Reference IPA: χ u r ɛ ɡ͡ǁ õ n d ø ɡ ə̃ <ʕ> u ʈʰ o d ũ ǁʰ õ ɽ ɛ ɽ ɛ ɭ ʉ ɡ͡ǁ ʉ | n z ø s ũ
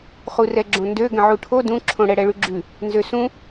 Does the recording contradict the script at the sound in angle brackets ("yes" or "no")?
no